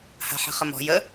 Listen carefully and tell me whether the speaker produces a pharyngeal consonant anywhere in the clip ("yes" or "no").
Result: yes